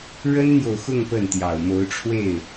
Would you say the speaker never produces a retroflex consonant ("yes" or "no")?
no